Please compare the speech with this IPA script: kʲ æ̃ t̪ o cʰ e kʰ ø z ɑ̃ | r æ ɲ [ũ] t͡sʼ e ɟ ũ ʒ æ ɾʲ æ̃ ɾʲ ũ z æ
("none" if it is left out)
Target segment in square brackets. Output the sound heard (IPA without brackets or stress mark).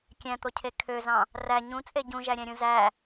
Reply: ũ